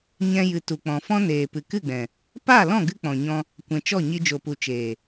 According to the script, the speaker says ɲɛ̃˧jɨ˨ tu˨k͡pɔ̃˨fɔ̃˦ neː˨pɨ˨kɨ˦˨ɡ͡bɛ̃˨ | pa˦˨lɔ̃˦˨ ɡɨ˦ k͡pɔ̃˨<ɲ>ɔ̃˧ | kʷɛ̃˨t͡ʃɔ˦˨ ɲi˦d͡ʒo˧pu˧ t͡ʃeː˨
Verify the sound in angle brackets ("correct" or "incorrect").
correct